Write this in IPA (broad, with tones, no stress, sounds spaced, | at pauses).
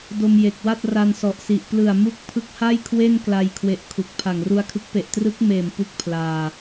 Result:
d o˧ m j e˨˩ k̚ w a˥˩ t̚ r a˧ n s ɔ˨˩ ʔ s i˨˩ ʔ p l ɯ˨˩ a̯ m u˦˥ k̚ pʰ ɯ˦˥ k̚ h a˥˩ j kʰ w e˥˩ n k l a˧ j kʰ w e˦˥ ʔ kʰ u˨˩ k̚ pʰ a˨˩ ŋ r u˧ a̯ kʰ ɯ˦˥ k̚ p e˨˩ ʔ t r ɯ˦˥ k̚ m eː˨˩ m p u˥˩ k̚ pʰ l aː˧